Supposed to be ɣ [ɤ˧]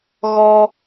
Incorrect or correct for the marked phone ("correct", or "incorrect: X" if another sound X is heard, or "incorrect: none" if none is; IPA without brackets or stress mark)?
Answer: incorrect: ɔ˧